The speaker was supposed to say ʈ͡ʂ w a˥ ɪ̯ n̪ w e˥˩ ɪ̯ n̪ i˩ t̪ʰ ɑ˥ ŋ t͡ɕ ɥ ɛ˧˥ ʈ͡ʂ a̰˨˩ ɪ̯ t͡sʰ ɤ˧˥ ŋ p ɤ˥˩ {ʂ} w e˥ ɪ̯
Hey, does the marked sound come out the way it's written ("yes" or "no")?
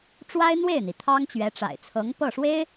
yes